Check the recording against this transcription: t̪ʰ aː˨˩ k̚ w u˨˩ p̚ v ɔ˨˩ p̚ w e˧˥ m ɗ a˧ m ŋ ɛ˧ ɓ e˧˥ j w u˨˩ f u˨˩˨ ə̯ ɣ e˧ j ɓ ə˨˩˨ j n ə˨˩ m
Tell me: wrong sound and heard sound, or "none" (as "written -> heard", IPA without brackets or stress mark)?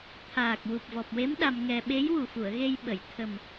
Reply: n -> t̪ʰ